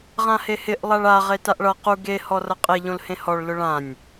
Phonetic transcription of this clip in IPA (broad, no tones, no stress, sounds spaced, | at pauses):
ʁ ã h e h ɪ ʔ lˠ a ɭ a ʁ e t a ʔ ɭ ʌ q u ɡ e h ɔ r ʌ qʼ e ʎ õ l h ẽ h ɔ ɭ l ʊ ɭ ã nʲ